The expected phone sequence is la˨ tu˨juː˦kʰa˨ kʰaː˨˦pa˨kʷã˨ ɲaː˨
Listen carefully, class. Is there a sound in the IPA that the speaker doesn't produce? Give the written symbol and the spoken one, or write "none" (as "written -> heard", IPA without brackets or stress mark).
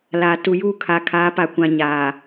none